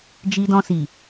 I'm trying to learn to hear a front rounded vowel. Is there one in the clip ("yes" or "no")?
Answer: no